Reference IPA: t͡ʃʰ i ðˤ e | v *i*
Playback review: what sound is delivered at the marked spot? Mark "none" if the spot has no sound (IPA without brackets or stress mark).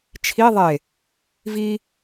i